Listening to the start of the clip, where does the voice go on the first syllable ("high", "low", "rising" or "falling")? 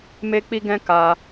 high